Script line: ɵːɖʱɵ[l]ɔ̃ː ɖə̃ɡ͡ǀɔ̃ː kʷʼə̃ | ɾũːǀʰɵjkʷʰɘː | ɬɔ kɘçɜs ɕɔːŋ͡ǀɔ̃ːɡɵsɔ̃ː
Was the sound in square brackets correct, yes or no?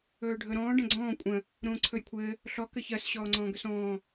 no